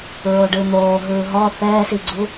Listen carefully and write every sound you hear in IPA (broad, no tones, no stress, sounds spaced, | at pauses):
ɹ o ɖ ɯ n̪ oː ɦ ɯː ɦ ɔ θ ɛː s i ɡ͡ǀ u